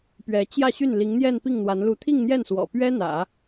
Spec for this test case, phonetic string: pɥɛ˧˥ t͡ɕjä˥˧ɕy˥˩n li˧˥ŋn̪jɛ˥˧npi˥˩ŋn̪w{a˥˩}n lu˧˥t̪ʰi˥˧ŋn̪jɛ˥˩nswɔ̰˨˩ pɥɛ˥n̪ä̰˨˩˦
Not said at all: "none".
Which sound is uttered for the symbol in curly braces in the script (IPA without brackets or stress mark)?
a˧˥